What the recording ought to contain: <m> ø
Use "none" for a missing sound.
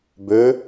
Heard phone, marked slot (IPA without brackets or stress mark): b